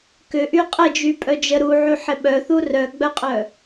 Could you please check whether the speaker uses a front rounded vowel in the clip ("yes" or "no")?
yes